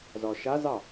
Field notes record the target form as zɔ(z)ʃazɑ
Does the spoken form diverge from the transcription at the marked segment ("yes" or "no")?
yes